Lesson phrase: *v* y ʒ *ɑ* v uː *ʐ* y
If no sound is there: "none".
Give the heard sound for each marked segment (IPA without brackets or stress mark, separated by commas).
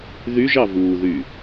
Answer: ð, ɑ, ð